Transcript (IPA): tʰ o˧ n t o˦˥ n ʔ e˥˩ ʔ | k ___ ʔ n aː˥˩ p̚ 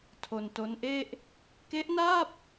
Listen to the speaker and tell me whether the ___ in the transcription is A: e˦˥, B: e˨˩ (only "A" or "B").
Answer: A